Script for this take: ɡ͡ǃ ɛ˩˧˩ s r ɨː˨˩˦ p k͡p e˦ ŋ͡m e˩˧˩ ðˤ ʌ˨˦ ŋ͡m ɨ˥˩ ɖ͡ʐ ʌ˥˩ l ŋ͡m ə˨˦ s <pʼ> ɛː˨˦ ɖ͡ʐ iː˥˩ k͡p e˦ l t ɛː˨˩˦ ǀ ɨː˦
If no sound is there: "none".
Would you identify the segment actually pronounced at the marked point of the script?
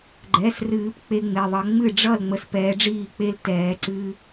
p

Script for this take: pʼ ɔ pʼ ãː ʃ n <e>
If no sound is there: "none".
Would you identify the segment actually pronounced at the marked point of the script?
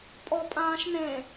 ẽ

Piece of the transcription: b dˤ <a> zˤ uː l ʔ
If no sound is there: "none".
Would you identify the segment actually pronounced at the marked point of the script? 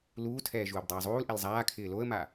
aː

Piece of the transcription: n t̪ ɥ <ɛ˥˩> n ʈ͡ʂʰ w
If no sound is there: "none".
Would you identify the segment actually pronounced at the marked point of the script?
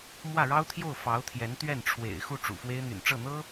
ɛ˥˩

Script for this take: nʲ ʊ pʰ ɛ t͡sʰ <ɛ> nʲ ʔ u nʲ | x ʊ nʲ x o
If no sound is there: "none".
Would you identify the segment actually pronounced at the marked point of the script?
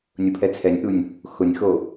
ɛ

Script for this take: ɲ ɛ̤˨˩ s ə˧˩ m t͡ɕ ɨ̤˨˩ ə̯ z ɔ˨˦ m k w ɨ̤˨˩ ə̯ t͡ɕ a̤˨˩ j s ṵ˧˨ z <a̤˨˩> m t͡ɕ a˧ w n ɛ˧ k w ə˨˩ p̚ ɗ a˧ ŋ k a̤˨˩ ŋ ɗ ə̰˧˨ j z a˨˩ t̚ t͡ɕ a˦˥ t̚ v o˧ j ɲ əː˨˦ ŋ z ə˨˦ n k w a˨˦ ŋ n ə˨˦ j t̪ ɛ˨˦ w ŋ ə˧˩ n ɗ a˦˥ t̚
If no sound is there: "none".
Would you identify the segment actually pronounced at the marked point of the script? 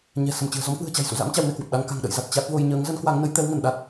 a̰˧˥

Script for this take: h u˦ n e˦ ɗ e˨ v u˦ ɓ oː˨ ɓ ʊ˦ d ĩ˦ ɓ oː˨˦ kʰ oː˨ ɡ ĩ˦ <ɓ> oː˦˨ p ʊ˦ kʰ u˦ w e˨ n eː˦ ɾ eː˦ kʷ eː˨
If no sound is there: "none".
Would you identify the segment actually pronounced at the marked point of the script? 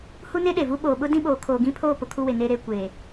pʰ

